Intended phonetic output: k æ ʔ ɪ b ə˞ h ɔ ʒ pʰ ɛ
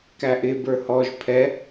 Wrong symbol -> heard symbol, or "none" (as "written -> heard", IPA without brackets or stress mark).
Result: none